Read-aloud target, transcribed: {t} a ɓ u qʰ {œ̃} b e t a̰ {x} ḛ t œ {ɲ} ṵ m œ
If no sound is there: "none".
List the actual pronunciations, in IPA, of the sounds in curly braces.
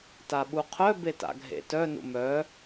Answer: t, œ, ɡʱ, n

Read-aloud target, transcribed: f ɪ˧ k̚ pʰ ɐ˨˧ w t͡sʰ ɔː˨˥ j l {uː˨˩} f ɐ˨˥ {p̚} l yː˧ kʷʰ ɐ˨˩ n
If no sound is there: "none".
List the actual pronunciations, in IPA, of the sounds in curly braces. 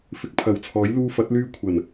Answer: uː˧, t̚

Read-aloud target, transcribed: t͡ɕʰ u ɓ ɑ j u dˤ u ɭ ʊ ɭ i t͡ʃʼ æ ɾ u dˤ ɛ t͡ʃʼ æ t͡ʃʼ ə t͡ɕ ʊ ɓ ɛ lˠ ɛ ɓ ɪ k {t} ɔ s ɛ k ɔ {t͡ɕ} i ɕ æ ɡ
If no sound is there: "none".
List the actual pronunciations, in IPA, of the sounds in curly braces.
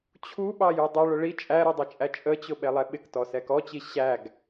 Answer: t, t͡ɕ

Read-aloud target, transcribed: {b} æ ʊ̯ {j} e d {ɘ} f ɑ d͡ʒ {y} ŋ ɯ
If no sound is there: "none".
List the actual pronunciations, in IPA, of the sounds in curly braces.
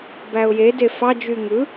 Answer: b, j, e, y

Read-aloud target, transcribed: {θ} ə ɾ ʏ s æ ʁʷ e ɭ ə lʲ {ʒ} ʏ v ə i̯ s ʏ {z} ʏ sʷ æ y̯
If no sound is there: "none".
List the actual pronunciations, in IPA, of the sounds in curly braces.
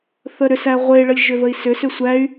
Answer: θ, ʒ, s

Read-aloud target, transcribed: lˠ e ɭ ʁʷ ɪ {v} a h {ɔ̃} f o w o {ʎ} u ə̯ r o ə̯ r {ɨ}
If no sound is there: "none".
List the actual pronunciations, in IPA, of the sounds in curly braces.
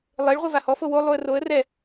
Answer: v, ɔ, lˠ, ɛ

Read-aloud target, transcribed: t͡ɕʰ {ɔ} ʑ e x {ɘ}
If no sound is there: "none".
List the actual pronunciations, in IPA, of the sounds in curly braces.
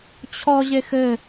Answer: ɔ, ɘ

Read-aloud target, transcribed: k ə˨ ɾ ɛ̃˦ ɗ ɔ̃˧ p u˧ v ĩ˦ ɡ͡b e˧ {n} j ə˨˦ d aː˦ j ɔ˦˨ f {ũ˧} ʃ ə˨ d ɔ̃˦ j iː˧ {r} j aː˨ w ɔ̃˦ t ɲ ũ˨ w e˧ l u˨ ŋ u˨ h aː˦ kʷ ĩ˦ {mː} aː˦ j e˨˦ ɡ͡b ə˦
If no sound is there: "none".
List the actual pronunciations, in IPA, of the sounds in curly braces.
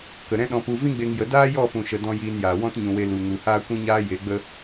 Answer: ŋ, ũ˨, n, ɲ

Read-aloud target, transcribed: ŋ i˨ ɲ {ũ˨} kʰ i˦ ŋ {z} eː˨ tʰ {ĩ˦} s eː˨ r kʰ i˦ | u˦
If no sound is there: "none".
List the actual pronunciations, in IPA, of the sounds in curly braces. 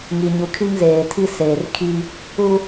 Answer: u˨, z, i˦

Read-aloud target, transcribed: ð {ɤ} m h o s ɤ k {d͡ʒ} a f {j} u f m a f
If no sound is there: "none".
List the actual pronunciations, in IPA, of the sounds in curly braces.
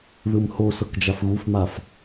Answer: ɯ, d͡ʒ, ɣ

